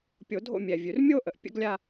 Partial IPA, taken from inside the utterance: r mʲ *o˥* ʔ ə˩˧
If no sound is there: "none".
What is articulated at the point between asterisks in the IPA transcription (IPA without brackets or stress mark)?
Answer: o˥